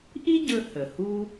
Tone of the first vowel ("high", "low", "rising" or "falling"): high